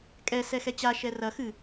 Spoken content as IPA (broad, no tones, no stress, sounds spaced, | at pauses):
kʼ ɛ s ɛ x ɛ t͡ɕ a ʃ ɛ r ɐ x ɨ